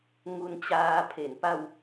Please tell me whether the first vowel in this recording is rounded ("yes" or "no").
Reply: yes